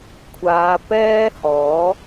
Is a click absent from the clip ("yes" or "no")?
yes